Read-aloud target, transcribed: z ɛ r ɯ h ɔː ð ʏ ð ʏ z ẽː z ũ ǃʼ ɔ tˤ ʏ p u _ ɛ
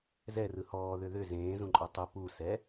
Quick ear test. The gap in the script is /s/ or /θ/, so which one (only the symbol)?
s